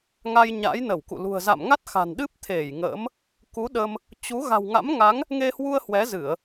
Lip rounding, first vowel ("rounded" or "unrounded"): unrounded